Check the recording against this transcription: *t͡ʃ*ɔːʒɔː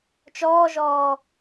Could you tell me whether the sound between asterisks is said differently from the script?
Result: no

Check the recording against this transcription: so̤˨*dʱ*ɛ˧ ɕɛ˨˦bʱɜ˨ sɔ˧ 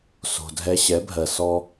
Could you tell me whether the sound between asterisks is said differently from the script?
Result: no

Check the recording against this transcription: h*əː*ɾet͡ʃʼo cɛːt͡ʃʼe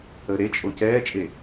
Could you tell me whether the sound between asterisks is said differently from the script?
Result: no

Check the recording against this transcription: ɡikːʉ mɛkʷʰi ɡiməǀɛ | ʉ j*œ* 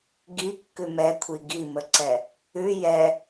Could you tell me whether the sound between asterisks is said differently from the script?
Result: yes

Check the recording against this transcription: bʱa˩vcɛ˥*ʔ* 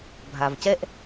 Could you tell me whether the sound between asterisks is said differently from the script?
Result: no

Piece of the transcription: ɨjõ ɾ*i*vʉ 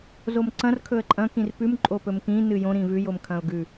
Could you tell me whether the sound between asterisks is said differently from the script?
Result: yes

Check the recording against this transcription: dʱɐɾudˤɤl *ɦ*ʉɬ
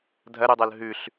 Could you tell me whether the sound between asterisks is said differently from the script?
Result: no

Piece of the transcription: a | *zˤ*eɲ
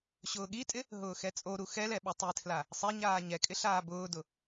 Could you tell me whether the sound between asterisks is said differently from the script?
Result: yes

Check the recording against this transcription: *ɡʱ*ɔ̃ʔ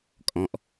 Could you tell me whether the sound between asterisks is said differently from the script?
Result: yes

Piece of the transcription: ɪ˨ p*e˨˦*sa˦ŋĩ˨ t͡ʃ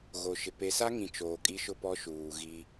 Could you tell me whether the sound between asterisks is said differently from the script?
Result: yes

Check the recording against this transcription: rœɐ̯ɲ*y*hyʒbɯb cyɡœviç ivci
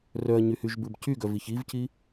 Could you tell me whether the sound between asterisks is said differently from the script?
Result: no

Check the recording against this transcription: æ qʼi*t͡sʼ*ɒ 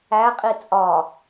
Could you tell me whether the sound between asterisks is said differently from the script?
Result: no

